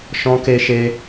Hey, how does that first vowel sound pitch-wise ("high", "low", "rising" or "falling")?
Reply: high